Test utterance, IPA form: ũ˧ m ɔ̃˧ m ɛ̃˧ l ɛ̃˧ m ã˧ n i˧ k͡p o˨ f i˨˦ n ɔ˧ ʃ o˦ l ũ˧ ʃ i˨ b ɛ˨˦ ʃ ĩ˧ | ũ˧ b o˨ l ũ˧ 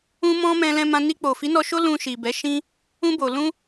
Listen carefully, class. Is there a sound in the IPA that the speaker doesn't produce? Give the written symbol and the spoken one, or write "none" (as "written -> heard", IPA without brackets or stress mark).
none